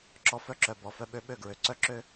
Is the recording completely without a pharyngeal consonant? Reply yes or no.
yes